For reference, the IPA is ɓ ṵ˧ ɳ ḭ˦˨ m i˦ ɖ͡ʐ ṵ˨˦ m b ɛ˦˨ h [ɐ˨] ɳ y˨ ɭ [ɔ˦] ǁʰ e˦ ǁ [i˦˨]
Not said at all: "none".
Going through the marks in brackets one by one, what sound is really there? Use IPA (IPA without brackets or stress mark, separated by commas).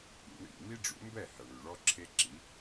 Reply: ɐ˨, ɔ˦, i˨˦